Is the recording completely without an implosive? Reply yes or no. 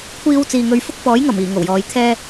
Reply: yes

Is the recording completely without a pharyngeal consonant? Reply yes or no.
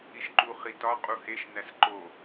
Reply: yes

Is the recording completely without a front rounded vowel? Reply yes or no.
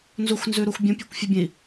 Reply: yes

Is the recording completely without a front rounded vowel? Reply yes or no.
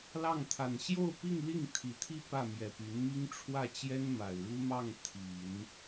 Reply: no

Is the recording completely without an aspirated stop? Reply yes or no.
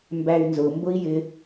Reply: yes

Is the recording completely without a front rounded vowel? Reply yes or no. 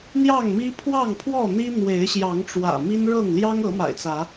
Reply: yes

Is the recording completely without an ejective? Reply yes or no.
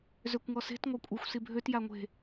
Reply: no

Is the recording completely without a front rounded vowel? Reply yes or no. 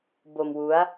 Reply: yes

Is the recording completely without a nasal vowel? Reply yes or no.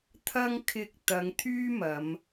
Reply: yes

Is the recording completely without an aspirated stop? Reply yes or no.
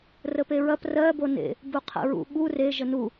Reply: no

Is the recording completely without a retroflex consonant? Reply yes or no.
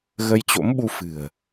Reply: yes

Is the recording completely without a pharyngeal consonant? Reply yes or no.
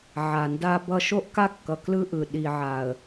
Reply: no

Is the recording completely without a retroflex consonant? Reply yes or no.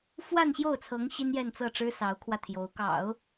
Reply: no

